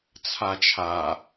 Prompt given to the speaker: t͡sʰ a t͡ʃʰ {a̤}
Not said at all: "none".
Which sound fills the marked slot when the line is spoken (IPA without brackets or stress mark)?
a